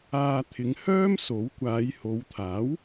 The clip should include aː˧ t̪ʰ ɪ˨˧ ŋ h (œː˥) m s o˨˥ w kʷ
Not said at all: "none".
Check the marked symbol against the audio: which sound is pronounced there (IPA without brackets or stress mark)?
œː˥